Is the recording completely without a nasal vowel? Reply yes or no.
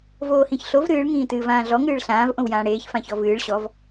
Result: no